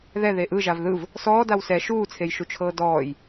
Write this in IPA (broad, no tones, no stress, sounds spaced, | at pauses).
ð ɛ ð e ʔ ɯ ʒ a v ð ɯ v | s ɔː d a w s ɛ ʃ uː t͡sʰ e j ʃ u t͡ʃʰ ɤː d ɔː j